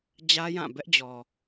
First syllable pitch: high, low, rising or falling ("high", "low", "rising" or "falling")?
high